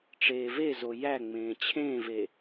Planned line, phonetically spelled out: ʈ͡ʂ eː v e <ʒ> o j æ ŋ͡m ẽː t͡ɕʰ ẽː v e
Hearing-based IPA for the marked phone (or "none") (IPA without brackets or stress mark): z